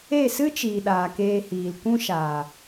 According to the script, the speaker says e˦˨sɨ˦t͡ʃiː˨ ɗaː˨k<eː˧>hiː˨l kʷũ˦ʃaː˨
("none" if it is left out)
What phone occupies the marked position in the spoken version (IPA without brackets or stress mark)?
eː˧